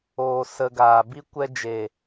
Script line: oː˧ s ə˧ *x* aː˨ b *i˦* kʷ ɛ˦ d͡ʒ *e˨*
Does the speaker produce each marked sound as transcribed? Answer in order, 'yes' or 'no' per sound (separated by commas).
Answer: no, yes, yes